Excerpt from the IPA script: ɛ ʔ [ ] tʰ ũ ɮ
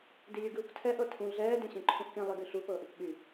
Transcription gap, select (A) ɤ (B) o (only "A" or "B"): A